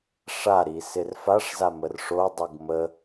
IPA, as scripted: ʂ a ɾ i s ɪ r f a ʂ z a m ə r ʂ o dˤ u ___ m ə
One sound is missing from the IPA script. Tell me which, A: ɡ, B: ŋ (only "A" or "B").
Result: A